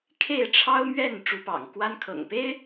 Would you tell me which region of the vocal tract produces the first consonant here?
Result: velum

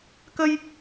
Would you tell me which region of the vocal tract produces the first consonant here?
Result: velum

